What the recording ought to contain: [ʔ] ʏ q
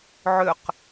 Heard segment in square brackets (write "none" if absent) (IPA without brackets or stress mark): ʕ